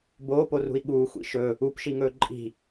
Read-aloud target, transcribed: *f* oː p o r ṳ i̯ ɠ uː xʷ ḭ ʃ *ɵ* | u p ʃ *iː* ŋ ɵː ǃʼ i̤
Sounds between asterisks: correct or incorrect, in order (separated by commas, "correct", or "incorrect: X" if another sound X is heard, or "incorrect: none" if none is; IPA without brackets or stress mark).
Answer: incorrect: b, correct, incorrect: i